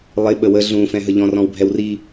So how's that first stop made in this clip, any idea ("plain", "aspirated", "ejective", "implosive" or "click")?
implosive